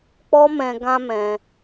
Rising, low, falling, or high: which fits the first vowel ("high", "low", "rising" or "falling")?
high